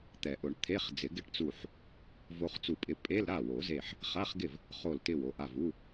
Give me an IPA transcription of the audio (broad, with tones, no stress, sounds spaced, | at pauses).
t̪ ɛ˨˩˦ ʔ ʊ˨˩˦ ɳ t̪ʰ e˧˥˧ χ d͡z ɪ˨˩˦ ɡ ɪ˦˥ ʈ t͡s u˧˩ ħ | v o˧ χ t͡s u˧˩ pʼ ɪ˧ pʼ e˧˥˧ l ɾ a˥˩ w o˨˩˦ z e˧˩ ħ | χ a˧˥˧ χ ɡ ɪ˥˩ v | χ o˧˩ l t ɪ˧˩ w o˧˩ ʔ a˧˩ v u˧˥˧